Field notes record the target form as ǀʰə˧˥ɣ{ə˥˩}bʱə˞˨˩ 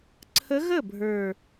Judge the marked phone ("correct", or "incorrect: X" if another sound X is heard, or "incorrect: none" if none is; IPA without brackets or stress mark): correct